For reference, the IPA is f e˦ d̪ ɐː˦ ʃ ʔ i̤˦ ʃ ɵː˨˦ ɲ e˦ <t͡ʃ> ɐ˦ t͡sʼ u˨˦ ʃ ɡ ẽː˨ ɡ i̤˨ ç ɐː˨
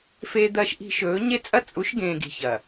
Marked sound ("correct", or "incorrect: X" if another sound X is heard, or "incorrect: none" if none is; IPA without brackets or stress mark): incorrect: t͡sʼ